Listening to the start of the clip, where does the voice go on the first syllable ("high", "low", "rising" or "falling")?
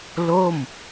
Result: falling